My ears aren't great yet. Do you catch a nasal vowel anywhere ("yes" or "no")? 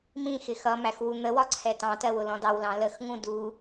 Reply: yes